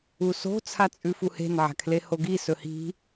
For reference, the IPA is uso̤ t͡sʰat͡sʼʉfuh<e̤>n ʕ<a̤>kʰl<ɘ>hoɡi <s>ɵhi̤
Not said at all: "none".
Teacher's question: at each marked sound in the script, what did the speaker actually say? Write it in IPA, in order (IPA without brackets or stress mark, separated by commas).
e̤, a̤, e, s